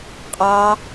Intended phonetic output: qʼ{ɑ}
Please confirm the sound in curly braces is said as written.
yes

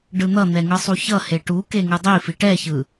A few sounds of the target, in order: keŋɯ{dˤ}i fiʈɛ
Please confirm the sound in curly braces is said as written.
yes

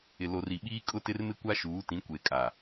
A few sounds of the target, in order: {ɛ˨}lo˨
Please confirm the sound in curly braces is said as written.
no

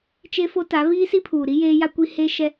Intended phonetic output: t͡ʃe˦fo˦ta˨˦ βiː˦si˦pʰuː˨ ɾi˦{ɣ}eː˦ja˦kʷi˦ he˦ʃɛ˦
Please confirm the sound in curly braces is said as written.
no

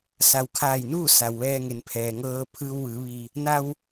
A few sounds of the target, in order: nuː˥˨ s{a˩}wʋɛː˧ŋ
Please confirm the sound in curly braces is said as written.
yes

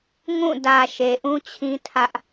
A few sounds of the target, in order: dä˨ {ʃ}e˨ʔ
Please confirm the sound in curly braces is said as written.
yes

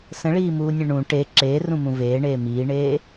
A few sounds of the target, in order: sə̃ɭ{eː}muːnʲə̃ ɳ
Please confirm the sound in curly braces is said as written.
no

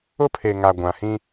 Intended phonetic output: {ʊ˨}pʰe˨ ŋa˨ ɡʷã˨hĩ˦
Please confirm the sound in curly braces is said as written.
no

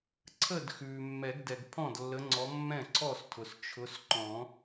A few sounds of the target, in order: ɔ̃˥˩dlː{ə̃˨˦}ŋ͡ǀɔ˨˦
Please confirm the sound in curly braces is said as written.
no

